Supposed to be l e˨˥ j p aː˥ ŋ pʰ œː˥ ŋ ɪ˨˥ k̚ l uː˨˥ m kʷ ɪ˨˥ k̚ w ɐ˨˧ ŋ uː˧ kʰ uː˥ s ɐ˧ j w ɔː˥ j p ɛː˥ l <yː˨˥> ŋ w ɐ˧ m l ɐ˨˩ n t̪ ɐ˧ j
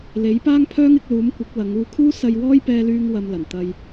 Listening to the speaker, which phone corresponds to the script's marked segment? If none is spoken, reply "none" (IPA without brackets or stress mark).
yː˥